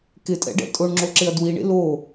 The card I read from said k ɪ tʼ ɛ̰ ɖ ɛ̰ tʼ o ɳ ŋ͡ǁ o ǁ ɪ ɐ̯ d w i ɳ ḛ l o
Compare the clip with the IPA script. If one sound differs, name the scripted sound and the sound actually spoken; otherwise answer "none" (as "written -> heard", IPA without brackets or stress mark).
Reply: none